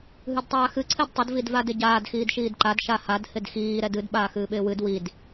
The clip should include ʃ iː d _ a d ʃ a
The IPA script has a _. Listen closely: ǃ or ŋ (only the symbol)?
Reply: ǃ